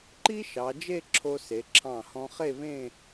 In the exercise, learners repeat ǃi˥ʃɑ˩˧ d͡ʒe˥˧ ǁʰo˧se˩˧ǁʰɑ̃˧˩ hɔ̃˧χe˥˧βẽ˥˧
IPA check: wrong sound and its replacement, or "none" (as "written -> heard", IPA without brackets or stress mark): none